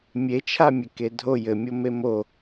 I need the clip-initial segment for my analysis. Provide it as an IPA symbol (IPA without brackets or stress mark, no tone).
mʲ